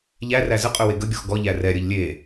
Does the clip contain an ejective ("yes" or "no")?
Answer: yes